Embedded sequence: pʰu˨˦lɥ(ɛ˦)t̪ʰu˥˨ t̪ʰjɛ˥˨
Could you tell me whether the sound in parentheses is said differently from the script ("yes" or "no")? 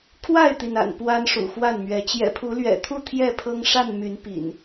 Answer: yes